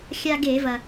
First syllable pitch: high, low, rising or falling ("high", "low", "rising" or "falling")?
high